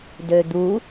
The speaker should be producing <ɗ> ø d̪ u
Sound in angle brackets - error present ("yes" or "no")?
yes